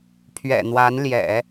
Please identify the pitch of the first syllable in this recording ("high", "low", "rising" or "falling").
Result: low